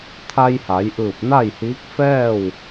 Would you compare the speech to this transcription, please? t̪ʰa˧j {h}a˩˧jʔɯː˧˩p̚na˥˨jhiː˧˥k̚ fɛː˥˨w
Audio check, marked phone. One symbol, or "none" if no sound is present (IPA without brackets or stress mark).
h